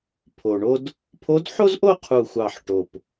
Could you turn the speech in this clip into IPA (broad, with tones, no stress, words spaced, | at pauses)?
pʰo˨˩ɳo˥d | pʰo˧˥dħo˥zʔo˥ qʰu˦˨xʷɑ˦˨ħ ʈo˨˩p